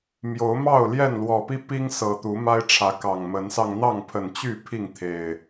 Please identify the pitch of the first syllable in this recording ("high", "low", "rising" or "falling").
rising